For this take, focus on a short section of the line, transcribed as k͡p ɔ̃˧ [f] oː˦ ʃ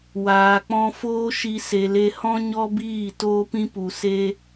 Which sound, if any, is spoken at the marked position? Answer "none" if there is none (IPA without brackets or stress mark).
f